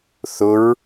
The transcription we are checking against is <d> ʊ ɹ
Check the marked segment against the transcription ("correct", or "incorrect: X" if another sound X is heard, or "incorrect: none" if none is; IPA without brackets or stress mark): incorrect: θ